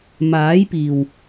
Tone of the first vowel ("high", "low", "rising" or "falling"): rising